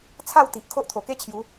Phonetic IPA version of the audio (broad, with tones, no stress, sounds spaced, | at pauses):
t͡sʰ a˥˧ w t̪ i˨ ʔ kʰ o˦ ʔ t̪ʰ o˨˩ k e˦ t͡ɕʰ j u˨˦